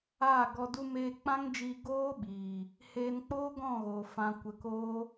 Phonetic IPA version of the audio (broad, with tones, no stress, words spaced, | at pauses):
aː˦˨ɡɔ˧ du˧meː˧k͡pã˦ŋd͡ʒiː˧ ɡoː˦ɓiː˨ | heː˧nk͡poː˦ ɡɔ̃˦˨ɣoː˨ fã˧ kʷə˧koː˦